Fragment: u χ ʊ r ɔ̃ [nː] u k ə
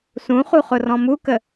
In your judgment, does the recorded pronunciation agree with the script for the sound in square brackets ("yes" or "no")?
no